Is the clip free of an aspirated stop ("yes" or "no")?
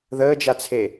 no